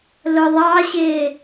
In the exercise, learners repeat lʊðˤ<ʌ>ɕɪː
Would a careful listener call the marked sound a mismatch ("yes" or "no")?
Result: yes